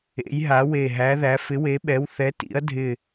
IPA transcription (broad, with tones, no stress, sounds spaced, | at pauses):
ḛ˨˥ j ɦ a˨˥ w e˧˩ ɦ æ˨˥ ð æ˨˥ f ɪ˨˥ w e˨˥ ɓ ɛ˨˥ w θ ɛ˨˥ t ḭ˨˥ ɐ̯ dʱ ɪ˧˩